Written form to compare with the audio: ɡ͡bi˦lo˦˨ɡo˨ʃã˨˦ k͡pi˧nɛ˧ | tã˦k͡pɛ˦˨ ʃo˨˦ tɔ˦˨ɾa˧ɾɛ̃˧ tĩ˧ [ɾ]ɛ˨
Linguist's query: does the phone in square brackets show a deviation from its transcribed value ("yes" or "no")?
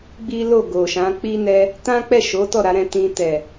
yes